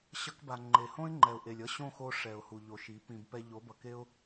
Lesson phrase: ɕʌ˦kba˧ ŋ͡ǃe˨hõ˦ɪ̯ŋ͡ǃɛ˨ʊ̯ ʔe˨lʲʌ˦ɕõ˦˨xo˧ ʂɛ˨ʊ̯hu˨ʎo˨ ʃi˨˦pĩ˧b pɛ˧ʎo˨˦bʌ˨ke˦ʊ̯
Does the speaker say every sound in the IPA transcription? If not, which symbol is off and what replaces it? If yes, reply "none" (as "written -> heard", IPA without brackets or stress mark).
none